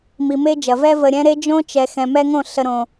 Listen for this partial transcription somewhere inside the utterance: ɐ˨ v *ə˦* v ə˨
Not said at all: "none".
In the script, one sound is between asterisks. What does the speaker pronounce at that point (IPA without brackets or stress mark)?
ɛ˦